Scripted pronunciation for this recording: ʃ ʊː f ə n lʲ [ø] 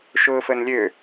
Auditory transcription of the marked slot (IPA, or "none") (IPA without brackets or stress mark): ø